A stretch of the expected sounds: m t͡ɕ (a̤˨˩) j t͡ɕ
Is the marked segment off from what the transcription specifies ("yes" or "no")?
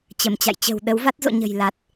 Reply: yes